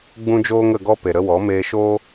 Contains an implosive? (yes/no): no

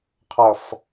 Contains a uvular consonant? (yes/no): yes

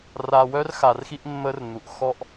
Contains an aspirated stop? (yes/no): no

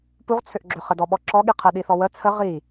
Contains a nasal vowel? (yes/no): no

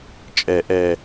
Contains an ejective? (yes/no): yes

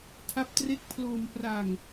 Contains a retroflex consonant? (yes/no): no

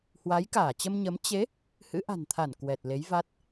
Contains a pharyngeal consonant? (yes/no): no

